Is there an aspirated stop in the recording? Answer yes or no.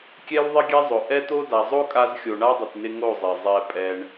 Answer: no